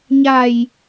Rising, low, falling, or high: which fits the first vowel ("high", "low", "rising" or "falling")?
low